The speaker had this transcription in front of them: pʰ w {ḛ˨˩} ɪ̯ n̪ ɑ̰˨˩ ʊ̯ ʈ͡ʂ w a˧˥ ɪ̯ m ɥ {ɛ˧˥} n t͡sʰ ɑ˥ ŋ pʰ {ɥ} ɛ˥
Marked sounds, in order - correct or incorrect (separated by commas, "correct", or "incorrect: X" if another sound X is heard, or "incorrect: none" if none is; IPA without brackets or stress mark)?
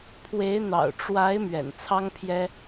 incorrect: e˧˥, incorrect: ɛ̰˨˩, incorrect: j